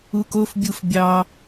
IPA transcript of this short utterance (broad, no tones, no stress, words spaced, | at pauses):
ukofbʲuf bʲɑ